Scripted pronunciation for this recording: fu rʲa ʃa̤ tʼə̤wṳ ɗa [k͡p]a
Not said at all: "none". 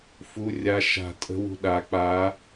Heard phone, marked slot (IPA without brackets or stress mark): k͡p